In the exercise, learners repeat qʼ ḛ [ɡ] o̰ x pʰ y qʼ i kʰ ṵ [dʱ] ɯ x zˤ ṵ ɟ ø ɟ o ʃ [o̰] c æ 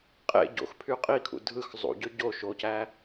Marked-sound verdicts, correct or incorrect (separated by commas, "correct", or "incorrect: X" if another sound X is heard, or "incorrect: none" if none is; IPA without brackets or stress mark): incorrect: ɟ, correct, incorrect: o